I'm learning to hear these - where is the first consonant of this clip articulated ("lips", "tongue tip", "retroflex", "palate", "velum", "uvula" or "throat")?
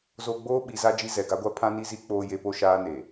tongue tip